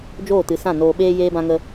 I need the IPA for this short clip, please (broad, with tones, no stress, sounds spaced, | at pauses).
d͡ʒ oː˦˨ t ɨ˨˦ s ã˦˨ n oː˧ ɓ eː˦ j eː˦ b ã˦ ŋ ə˦